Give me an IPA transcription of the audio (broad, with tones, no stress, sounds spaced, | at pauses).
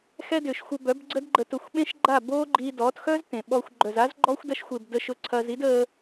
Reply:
x ɛ˦ d ʏː˨ ʃ xʷ ə˧ b œ˨˦ b ɡ͡ǀ ə˦ d ɡ͡ǃ ə˧ t ʊ˧ xʷ ɓ ẽ˦ ʃ ɡ͡ǃ a˦˨ b oː˦ ɡ͡ǃ i˧ d ɔː˨˦ t x œ˦ z t ẽ˨ ɓ ɔː˧ xʷ ɡ͡ǃ œ˨ z a˦ z ɡ͡ǃ ɔː˦ xʷ d ɐ˧ ʃ xʷ e˨ b d əː˧ ʃ ʊ˦˨ ǀʰ ɐː˧ z i˦ d əː˧